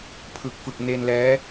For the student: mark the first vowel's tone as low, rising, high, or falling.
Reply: low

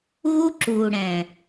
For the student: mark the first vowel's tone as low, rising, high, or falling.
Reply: high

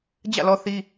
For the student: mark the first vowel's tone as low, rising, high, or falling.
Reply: falling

